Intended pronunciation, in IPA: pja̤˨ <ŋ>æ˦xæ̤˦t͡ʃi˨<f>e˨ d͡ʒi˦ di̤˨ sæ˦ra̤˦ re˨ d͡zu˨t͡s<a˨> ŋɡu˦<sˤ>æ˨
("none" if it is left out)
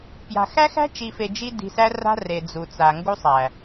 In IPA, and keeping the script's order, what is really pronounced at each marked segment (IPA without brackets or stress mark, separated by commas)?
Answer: x, f, a˨, sˤ